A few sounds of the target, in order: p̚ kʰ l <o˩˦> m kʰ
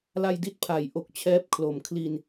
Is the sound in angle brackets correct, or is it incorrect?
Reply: correct